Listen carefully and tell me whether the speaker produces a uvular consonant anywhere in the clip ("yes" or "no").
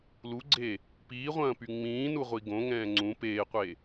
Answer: yes